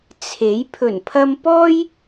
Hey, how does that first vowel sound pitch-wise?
rising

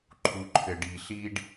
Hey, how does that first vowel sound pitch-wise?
low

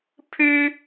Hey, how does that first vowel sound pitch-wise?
high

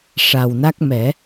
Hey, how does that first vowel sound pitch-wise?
low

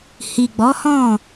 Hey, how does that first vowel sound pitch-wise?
low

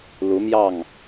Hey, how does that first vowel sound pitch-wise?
rising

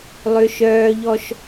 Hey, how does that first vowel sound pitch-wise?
high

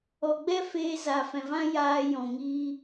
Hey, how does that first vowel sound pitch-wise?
low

